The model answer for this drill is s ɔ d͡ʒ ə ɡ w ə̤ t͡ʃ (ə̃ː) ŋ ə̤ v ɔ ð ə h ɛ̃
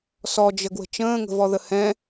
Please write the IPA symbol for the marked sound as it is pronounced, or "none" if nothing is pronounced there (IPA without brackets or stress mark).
ə̃ː